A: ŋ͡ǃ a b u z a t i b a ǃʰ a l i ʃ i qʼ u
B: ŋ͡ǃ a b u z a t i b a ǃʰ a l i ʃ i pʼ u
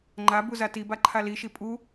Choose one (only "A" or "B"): B